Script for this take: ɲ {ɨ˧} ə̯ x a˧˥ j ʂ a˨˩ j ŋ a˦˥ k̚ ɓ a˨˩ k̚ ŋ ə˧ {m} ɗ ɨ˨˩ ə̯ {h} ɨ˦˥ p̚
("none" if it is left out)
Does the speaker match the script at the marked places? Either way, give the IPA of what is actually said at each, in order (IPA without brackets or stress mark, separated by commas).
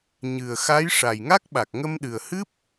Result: ɨ˨˩, m, h